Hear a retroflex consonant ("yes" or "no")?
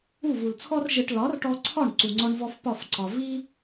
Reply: yes